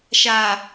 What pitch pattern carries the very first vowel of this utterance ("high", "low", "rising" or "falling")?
low